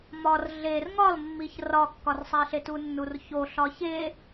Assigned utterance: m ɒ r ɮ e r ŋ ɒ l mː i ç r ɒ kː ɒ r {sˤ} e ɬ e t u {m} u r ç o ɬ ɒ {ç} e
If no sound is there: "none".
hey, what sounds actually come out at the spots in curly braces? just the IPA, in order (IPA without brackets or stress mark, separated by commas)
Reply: sˤ, nː, ç